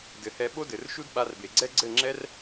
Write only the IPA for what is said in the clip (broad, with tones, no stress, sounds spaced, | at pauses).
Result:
d ɘ˨ h ɛ˧ ɓ o˦ d ɘ˨ r ʃ u˦ d ɓ a˧ r b e˨ ɡ͡ǀ ɛ˦ ɡ͡ǀ ɘ˦˨ ŋ͡ǁ ɛ˦ r